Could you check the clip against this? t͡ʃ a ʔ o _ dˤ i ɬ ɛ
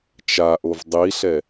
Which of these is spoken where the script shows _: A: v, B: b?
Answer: A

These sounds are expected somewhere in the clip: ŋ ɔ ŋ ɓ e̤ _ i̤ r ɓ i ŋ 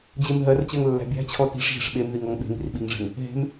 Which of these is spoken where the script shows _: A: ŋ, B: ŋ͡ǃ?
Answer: A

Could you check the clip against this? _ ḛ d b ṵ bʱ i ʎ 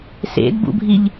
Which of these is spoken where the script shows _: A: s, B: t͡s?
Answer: A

